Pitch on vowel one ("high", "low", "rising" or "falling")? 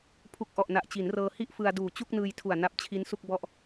low